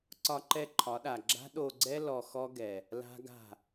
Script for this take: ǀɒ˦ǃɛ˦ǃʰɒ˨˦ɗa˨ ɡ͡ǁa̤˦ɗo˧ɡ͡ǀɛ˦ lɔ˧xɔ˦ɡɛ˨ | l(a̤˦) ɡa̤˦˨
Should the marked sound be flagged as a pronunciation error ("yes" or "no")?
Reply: no